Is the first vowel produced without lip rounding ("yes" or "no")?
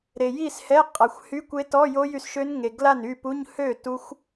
yes